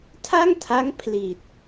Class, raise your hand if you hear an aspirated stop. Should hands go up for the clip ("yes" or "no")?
yes